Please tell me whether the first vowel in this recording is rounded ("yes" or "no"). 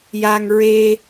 no